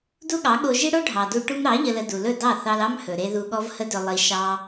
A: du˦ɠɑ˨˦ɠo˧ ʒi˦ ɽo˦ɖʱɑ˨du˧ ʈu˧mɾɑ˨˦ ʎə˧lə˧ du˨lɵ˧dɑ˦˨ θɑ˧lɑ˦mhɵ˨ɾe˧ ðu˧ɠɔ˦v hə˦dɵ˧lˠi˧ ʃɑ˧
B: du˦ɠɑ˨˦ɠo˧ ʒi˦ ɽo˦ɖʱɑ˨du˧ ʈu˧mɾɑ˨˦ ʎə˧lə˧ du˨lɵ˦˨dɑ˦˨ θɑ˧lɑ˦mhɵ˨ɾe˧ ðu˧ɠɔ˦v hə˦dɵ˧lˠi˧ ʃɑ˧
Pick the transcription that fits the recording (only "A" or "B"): B